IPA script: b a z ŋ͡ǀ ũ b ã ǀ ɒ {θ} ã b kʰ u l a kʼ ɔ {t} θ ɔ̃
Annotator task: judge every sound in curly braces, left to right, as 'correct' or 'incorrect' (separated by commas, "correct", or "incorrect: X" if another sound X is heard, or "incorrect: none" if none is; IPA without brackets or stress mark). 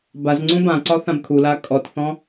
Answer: correct, correct